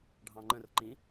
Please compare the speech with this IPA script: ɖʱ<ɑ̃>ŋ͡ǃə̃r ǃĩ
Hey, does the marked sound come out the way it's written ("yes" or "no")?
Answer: yes